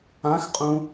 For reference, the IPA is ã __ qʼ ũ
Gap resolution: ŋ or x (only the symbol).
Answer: x